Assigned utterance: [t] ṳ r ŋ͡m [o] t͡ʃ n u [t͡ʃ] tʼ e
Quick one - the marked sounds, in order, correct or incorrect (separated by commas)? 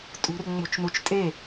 incorrect, incorrect, correct